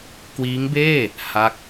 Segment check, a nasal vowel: absent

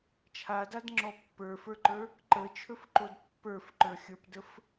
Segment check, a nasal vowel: absent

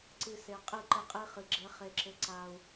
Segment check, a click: present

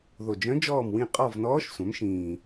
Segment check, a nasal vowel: present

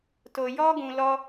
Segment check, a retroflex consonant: absent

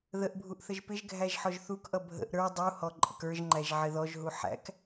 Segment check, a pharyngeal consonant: present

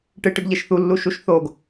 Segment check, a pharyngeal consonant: absent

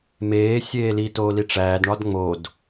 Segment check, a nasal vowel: absent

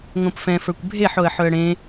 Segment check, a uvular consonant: absent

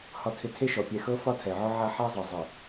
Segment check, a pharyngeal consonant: present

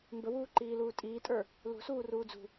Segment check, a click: present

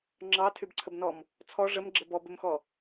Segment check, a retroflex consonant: present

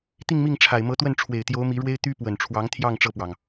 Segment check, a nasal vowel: absent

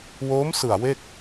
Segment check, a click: absent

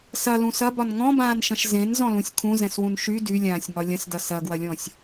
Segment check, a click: absent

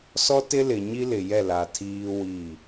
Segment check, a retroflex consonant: absent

